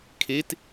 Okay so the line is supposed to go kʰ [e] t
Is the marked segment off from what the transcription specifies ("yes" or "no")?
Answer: no